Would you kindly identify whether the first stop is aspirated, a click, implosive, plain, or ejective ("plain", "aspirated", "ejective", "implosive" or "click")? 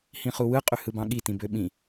ejective